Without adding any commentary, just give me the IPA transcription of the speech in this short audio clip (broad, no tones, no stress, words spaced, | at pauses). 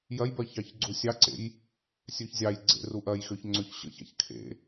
jɐjbɜ çɑçɡ͡ǀusʲɑǀḛj | sʲøçzʲɑjɡ͡ǀḛ ruʔɐjxøç ŋ͡ǀøçɕə̰ça̰ç kʰḛ